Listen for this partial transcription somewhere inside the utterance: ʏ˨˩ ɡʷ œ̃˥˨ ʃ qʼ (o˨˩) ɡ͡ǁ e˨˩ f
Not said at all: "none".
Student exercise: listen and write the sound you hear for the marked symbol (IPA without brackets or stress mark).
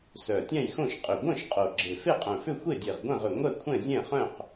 o˨˩